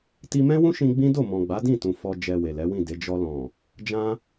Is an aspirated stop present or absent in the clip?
absent